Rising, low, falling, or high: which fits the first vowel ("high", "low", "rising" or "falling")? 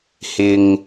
low